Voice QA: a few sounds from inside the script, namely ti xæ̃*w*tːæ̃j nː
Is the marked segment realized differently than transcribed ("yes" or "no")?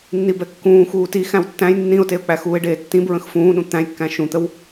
no